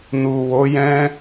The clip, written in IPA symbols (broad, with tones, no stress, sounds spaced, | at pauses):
n u˨ w o˨˦ j ɛ̃˦